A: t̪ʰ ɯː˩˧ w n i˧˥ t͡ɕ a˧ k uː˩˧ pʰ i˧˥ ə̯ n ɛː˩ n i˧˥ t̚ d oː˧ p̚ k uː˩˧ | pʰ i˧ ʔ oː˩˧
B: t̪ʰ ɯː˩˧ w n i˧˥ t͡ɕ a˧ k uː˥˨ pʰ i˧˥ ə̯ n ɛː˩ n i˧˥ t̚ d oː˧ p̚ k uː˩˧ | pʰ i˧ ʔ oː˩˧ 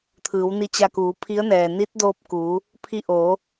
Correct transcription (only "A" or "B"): A